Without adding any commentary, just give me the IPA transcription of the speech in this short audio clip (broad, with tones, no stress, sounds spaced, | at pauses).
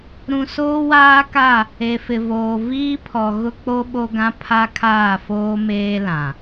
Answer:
ɾ ũ˨ s oː˦ w aː˦ k a˦˨ | e˨ f ɪ˨ v oː˨ v iː˦ pʰ ɔ˨ ɣ ʊ˦ k͡p o˦ ɓ o˦ ɡ ã˦ pʰ a˦ kʰ aː˦˨ f oː˦ m eː˦ l ã˨